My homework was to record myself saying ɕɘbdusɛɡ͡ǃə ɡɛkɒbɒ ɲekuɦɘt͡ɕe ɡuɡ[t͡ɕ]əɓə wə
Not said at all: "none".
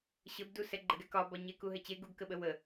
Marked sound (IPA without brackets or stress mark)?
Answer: k